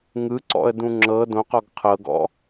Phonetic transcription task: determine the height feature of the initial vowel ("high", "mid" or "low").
high